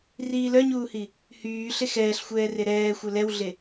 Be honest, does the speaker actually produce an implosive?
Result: no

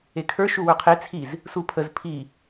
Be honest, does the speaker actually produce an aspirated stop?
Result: yes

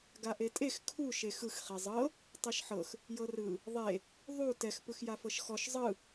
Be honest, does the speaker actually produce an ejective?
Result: yes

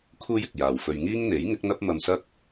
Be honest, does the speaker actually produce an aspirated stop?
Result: yes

